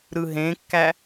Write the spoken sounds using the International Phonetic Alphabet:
ɾ ɯ ɦ ẽ kː æ

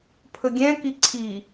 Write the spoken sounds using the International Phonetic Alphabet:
pʰ ɵ ɡʲ ɛ̃ k i ǀʰ i

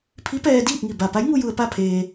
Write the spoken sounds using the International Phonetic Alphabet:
pʰ i˧˥ p ɛː˧ d iː˥˨ p̚ ŋ i˧˩ b a˧˩ p a˧˥ j ŋ u˧ j u˧ ə̯ p a˥˨ pʰ eː˧

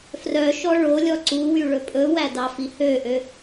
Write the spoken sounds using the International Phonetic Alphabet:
f r œ ʃ ɔ ɭ o lʲ ɔ ǀ u w y ɭ ɵ pʼ ɵ w æ d ɑ f i h ø ʔ ø

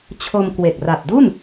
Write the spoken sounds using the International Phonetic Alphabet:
t͡ɕʰ o˧ m k w e˨˩ k̚ r a˨˩ p̚ d u˥˩ n

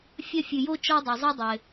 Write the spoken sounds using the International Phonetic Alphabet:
fʲ ɐ˧ fʲ ɨ˩ j o˧ t͡ʃ ɔ˧ dˤ ɐ˩ zˤ i˧ dˤ ɘ˩

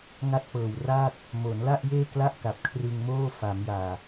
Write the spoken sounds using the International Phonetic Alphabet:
ŋ a˥˩ t̚ p ɤː˨˩ w r aː˥˩ t̚ | m o˩˦ n l a˥˩ ʔ j eː˥˩ k l a˥˩ ʔ k a˨˩ p̚ kʰ r ɯ˧ ŋ m oː˥˩ f a˩˦ m j aː˨˩

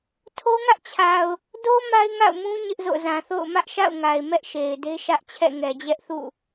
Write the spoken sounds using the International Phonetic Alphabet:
tʰ o˦ ŋ ä˦ ʔ t͡ɕʰ a˨ ʊ̯ | d o˦ m a˦ ɪ̯ ŋ a̰˦˨ ʊ̯ m ũ˦ ɲ ɪ˦ ʔ z o̰˦˨ z ã˨ θ o̰˦˨ ʊ̯ m ä˦ ʔ ʃ a̰˦˨ ʊ̯ ŋ a˨ ɪ̯ m ɛ˦ ʔ ʃ e˨ ɪ̯ d e˦ ʃ ä˦ ʔ t͡ɕʰ ɛ̰˦˨ ŋ ɛ˨ d͡ʑ ɛ˦ ʔ θ ṵ˦˨

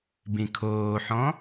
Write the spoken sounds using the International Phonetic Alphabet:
b ĩ kʰ oː ħ ɔ̃

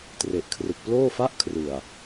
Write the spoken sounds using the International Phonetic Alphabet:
t r e˨˩ ʔ kʰ r ɯ˨˩ k̚ p l oː˥˩ f a˥˩ ʔ kʰ r ɯ˨˩ a̯

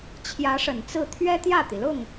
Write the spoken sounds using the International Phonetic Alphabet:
t͡ɕʰ j ä˧˥ ʂ ə˨˩ n t͡s ɹ̩˥˩ t̪ʰ ɥ ɛ˥ t̪ j ä˥˩ t̪ i˩ l ʊ˥˩ ŋ

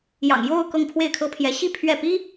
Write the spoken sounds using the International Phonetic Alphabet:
j ɑ̰˨˩ ŋ j o˥˧ ʊ̯ k ɤ˥˧ ŋ pʰ w e˥˩ ɪ̯ kʰ ɤ˥ pʰ j ɛ˧˥ ɕ i˥˧ pʰ ɥ ɛ˥˩ p i˥

